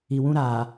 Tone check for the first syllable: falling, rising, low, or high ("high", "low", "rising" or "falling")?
low